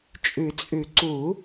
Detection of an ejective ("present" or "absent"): present